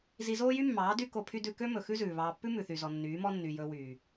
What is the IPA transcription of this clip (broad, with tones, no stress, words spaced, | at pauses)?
zi˧zoː˦jy˦mːɑː˨˦ dy˦ko˧pʰy˦ dʉ˧kø˦mɵ˨ xʉ˦zʉː˨βɑː˧ pːʉ˦mʉ˨θy˨zɔ˨ nːyː˨˦mɔ˦ nːy˨jɵ˧wyː˨